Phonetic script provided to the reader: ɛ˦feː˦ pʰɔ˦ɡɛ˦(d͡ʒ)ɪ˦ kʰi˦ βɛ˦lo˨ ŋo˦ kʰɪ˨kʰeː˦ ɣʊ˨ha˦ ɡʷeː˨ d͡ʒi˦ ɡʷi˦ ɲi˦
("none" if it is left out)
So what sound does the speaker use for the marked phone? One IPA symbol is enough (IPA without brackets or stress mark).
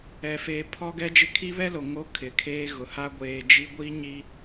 d͡ʒ